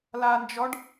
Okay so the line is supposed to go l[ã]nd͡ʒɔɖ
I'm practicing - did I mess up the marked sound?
yes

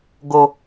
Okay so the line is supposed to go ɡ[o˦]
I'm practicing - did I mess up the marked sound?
no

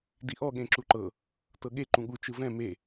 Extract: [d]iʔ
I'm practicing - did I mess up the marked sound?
no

